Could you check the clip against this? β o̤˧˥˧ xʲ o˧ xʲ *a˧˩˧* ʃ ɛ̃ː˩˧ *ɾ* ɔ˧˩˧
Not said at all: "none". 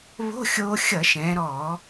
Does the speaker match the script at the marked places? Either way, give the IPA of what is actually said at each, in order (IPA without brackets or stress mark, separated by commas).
ʌ˧˩˧, ɾ